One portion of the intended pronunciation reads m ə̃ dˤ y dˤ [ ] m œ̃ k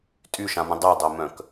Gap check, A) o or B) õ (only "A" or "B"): A